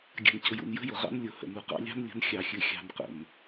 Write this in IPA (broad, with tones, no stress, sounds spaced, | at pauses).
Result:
ɡʲ a̤˨ n c ʊ˨ j ṵ˨ n j ə̤˦ j ʊ˨ ʁ ɑ̰˦ n lʲ ʊ˨ h ə̰˨ n u˨ q ɑ̰˦ lʲ ɑ̤˦ n lʲ ə̤˨˦ n xʲ ɑ˨ xʲ ɨ˨ xʲ ɑ̤˨ n q ə̰˨ n